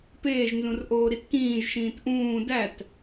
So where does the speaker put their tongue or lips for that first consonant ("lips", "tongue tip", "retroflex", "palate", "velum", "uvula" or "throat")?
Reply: lips